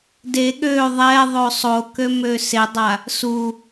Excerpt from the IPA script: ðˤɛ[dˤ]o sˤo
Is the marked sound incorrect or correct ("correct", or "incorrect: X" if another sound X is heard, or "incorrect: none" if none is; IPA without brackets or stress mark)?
incorrect: ðˤ